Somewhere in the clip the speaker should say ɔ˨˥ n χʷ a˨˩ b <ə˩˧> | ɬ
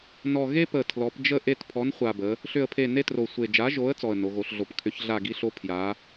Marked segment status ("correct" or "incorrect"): correct